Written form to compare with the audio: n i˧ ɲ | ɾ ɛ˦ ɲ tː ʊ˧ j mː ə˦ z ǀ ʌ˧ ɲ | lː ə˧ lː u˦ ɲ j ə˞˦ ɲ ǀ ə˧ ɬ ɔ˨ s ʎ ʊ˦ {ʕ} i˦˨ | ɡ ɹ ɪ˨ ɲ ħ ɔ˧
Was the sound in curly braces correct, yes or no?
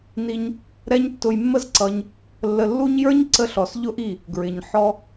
no